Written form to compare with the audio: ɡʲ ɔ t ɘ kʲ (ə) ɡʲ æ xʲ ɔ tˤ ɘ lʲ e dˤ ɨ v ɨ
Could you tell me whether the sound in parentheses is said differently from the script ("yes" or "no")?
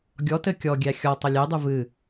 yes